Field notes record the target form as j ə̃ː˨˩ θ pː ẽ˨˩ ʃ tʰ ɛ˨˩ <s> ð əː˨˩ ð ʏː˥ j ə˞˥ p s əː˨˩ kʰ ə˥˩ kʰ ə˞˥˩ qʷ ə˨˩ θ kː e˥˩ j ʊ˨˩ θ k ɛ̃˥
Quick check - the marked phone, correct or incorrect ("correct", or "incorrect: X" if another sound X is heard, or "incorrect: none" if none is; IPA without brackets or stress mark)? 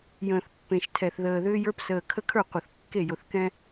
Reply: incorrect: θ